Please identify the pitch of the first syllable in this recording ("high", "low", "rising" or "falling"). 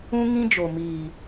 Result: high